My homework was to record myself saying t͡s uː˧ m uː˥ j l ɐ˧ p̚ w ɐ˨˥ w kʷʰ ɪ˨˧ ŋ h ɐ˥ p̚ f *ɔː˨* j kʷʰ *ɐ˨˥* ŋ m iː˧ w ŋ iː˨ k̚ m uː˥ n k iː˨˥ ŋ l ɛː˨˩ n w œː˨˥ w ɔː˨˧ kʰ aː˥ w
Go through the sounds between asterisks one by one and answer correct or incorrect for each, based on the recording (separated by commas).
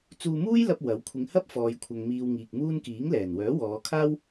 correct, incorrect